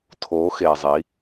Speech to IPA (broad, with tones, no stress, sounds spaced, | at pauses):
tʰ o˩˧ x e˩ zˤ i˩˧